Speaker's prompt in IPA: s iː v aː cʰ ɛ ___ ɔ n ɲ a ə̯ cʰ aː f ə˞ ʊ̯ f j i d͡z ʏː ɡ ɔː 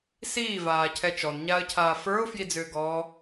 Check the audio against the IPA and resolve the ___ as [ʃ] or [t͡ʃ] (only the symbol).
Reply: t͡ʃ